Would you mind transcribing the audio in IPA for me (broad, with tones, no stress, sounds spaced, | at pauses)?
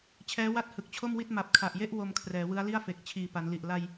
t͡ɕʰ ɛː˦˥ w a˥˩ t̚ h ɯ˨˩ k̚ t͡ɕʰ o˥˩ m w i˥˩ t̚ m a˨˩ p̚ kʰ a˨˩ ʔ j e˥˩ ʔ w o˧ m kʰ r ɛː˩˦ w ɯ˦˥ a̯ l i˥˩ a̯ f e˨˩ k̚ t͡ɕʰ iː˨˩ p a˩˦ n l i˨˩ ʔ l a˧ j